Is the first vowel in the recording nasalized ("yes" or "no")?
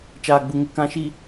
no